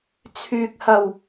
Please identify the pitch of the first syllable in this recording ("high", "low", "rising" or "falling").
low